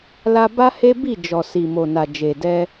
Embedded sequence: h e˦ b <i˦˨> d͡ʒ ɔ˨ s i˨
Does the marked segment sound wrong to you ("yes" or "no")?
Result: no